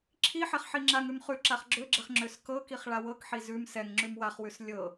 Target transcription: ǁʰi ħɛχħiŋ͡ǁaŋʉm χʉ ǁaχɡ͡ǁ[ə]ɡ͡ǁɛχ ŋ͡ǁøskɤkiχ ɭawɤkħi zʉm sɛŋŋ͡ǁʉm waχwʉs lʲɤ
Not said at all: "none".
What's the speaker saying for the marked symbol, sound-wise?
ø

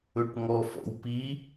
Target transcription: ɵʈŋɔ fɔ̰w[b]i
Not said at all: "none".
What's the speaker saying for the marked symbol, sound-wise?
p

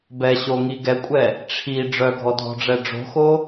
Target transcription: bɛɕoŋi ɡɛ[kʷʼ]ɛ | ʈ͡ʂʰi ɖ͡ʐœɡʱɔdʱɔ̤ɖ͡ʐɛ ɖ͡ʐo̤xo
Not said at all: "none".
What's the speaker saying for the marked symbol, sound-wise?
kʷʼ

